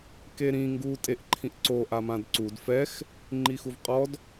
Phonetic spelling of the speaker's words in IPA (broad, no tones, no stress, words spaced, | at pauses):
keɾĩ ŋɡu tʼeʔǃʰĩʔǀo ʔamãdǀud fɛx | ŋ͡ǃixuvqʼɔd